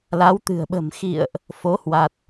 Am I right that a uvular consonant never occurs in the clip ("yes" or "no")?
yes